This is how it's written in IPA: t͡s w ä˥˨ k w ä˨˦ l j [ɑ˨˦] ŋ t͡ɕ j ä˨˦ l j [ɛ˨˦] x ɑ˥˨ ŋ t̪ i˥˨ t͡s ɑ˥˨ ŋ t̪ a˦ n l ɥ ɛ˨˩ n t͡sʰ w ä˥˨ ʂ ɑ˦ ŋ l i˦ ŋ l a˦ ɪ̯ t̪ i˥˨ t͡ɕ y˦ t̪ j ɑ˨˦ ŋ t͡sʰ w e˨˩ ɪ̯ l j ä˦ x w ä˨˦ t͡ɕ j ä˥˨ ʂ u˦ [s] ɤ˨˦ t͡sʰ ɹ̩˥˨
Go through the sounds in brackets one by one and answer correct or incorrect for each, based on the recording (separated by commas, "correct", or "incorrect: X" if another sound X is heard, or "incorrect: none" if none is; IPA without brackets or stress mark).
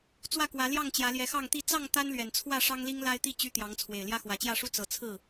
incorrect: ɑ˥˨, correct, incorrect: t͡s